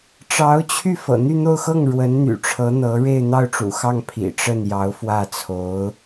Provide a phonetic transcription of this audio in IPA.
ʈ͡ʂɑ˧˥ʊ̯t͡ɕʰy˥˩fɤ̰˨˩ n̪y˥˧n̪o˥˧ʊ̯xɤ˥˩ŋ ɻwə˧˥nn̪y̰˨˩ʈ͡ʂʰɤ˧˥n̪ɤ˧˥ ɻe˥˧ɪ̯n̪ɑ˥˩ʊ̯ʈ͡ʂṵ˨˩xɑ˥˩ŋ pʰḭ˨˩ʈ͡ʂə˥˩n jɑ˧˥ʊ̯fwä˥˩t͡sʰo˧˥ʊ̯

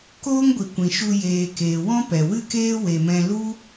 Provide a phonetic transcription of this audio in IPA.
koː˦ŋɡʷi˨ kʷĩ˨ʃu˧ jeː˨keː˨ wɔ̃˦pɛ˨wɨ˦keː˦ we˧mɛ̃˦ lu˦

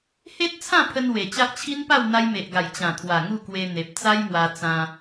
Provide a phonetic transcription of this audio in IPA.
he˦t̚t͡sʰã˥˧pʰə˧n we˨˩t͡ɕa˦ʔ t͡ɕʰi˦npa˥˧w n̪a˧jme˨ʔɡa˨˩j t͡ɕã˨˩t̪ʰwa˨˩ ŋu˥˧kwe˧n̪e˨p̚ t͡sa˦jmwa˧ t͡sã˧

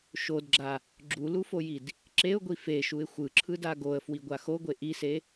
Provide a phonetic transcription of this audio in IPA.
ʃodɡ͡ǁa | ɡ͡ǁulufojid | ǁeʊ̯ɡʷi feʃuɪ̯ xʷɯǁʰɯda ɡoə̯fwiɡʷa xoɡʷe ʔise

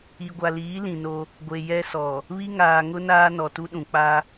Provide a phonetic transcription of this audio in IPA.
i˨ɡʷa˨liː˨˦ lĩ˨no˦ | ɡʷe˨jɛ˦sɔ˨ | βi˦ ŋaː˨ŋʊ˦ naː˦nɔ˨tu˦ɗũ˨ k͡pa˦

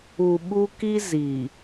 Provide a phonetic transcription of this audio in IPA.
u˨ ɓu˦ ki˦ zi˨

